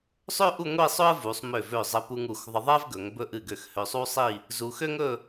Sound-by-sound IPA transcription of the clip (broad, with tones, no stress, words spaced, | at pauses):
sˤø˥ ʔu˥˧ŋʷi˥˧sˤɵ˥ə̯ vu˩˧sˤmø˧˩vø˧˩ zˤɘ˧pu˧ŋ u˧˩xðˤɘ˧ðˤɛ˥v ɡɵ˩˧ŋbɵ˧ʔɨ˧˩ɡø˧˩x hø˧sˤu˥ sˤi˥˧ | zu˧xø˥ŋɵ˥˧